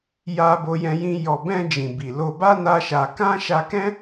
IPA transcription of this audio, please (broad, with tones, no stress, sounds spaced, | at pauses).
j a˧ b o˧ j ɛ̃˧ j ĩ˧ j ɔ˨ b ɛ̃˧ d͡ʒ ĩ˨ b i˨ l o˧ b a˦ n a˦ ʃ a˧ k ã˦ ʃ a˧ k ɛ̃˦